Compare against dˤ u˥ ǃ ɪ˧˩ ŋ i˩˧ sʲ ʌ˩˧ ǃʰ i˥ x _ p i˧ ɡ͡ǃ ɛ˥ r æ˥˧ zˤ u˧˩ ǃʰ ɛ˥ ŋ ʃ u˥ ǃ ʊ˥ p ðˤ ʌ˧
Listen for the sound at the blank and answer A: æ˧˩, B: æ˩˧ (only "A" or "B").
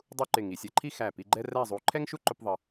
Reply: A